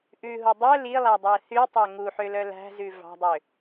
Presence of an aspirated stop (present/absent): absent